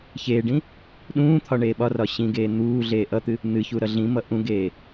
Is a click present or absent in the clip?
absent